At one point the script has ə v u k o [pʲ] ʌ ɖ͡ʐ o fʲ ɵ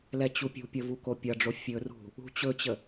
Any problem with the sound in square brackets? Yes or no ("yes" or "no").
no